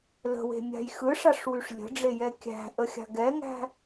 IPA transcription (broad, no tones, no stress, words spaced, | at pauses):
lə̤we̤mʲa̤j xɯʂaʂwyʂ lʲə̤ɖ͡ʐejɛ kʲæ̤ʔəxʲa̤ ɡɛŋæ̤